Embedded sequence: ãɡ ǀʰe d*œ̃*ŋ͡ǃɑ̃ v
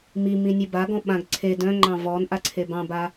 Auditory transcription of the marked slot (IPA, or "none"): œ̃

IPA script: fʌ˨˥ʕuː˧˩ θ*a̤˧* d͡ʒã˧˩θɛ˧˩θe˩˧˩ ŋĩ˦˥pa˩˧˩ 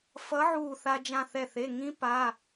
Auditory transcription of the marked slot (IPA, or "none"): a˧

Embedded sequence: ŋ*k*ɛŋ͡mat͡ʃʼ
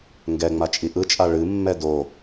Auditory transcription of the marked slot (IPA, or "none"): ɡ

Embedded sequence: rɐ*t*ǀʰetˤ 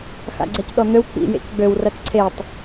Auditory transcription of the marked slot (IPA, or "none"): t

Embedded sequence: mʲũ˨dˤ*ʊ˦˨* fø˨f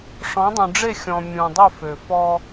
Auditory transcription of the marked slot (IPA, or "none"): ʊ˦˨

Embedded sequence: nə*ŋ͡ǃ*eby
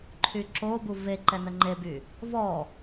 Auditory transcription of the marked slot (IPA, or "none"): ŋ͡ǃ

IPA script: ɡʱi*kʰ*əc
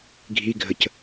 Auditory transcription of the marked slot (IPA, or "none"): ɡʱ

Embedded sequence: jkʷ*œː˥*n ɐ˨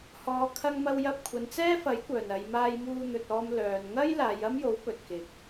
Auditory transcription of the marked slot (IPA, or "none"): œː˨˩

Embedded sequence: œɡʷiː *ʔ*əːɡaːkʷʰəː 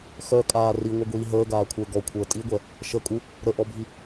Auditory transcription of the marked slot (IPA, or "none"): ɦ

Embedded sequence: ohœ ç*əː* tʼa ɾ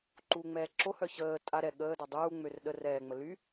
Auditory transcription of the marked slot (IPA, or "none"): əː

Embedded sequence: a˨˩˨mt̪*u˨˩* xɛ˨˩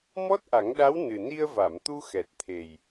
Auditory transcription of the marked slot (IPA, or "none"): u˧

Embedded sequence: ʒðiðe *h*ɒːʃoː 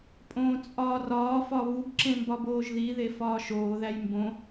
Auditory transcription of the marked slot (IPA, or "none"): f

